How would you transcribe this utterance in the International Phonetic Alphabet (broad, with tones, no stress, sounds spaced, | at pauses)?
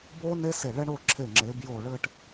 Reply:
b o˥ n e˥ s e˧˩ ɭ ɛ˥ ɳ o˥˧ ǁʰ e˧˩ ŋ͡ǁ e˩˧ b j o˧˩ ɭ ɘ˥˧ ʈ